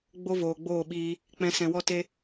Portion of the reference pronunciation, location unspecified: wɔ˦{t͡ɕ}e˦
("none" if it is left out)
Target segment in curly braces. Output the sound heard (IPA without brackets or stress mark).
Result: t